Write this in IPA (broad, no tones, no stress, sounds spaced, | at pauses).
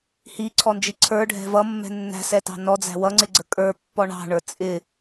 h i ǀʰ ɔ n d͡ʒ i ǀʰ ə˞ ɖʱ ɛ̤ v ʌ mː ɛ̤ nː æ̤ s ɛ t ɑ̤ n ɔ d͡z æ̤ w ʌ ŋ͡ǀ ɪ ɡ͡ǀ ə kʼ ə˞ pː ɔ ɳ ɑ̤ ɳ ə˞ t͡sʼ ɪ